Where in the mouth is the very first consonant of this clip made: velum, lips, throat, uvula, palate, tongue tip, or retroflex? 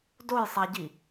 tongue tip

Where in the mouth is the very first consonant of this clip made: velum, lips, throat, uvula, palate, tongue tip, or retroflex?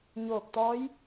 palate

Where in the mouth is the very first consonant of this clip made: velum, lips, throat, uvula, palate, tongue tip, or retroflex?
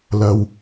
tongue tip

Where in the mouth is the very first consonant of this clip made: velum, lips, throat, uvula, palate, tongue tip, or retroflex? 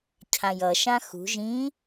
palate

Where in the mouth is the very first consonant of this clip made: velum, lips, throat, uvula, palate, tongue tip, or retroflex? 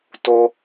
tongue tip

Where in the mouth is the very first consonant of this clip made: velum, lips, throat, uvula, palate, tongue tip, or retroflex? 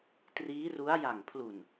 tongue tip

